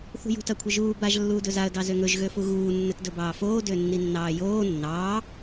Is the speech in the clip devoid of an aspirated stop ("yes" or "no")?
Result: no